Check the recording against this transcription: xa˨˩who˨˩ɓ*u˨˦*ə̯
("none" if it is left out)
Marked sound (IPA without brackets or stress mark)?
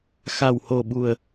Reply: u˨˩